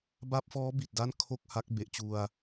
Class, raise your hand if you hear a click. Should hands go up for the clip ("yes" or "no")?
no